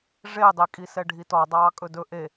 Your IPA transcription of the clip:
ʐedˤi kʼisɛɖʱitɔ dˤɑːkʼɵdɵ ʔe

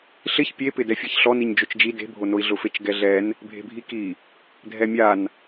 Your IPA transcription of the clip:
ɬɪç pʲepɪ dɛfʲaçɬɔ niɲd͡ʒot͡ʃd͡ʒi de̤bʱonoi̯ ɮʊfet͡ʃɡɛɮɛn | bʱe̤bʱiki | dʱɛmʲan

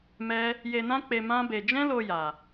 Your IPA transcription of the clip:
mɛ˦ | je˧nã˦k͡pe˧ mã˦be˧ d͡ʒɛ̃˦lo˧ja˨

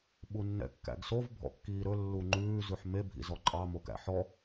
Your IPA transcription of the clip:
ɓunːɛ̰kːæ̰ɡsov bʱɔ̰kːiːɾɵ lːuŋ͡ǃʉː zʉħme bʱḭzɔǃʼɑ mokæ̰ħɔ

